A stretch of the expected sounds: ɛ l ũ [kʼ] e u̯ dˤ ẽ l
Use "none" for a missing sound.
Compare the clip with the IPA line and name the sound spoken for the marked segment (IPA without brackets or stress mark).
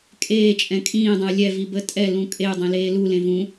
kʼ